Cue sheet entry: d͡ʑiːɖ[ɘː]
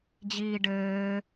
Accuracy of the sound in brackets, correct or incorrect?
correct